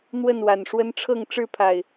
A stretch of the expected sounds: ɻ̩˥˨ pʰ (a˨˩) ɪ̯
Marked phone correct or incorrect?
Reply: correct